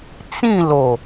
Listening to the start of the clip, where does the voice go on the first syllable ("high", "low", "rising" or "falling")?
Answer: falling